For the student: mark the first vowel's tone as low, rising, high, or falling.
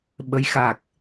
rising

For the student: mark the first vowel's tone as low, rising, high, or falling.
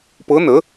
rising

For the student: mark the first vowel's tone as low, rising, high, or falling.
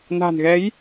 low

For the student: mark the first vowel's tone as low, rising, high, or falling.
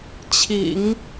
low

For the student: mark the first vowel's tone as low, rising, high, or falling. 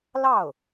falling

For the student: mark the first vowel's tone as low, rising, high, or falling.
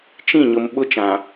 falling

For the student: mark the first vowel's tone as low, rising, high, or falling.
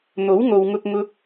rising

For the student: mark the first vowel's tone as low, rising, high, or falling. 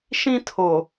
high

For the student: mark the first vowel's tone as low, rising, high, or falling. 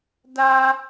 high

